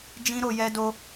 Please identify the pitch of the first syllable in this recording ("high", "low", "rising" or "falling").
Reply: high